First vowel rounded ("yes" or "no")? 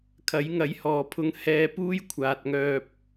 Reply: no